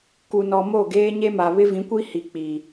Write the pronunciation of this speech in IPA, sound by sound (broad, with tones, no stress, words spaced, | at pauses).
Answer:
ku˨nɔ˨ mo˦˨ɡeː˦ɲe˦ma˨ βɪ˦vĩ˨˦kʷi˦hi˨ k͡pi˨